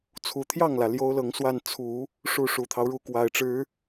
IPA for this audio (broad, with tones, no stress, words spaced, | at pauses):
t͡sʰu˨˩t̪ʰjɑ˥˩ŋlä˩ ljo˥ʊ̯lɤ˧˥ŋ swa˥˩n t͡sʰu˨˩˦ | ʂu˥˩ ʂu˨˩t̪ʰɑ˦ʊ̯ ɻu˥˩kwa˨˩ɪ̯ʈ͡ʂɻ̩˧˥